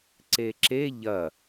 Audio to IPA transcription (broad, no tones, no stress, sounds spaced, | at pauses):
ǀ e ǁ e ʎ ɐ